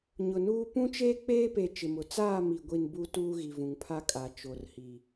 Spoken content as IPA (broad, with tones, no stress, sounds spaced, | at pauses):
ɲ ʊ˨ n uː˦ p ũ˦ t͡ʃ eː˦ k͡p eː˦ p e˨ t͡ʃ ɪ˨ m ʊ˨ t͡s aː˦˨ m i˨ ɡʷ i˨ n b u˨ t uː˦ ɣ i˨ v ũ˨ ŋ pʰ a˦ kʼ a˨ t͡ʃ o˨ r h i˨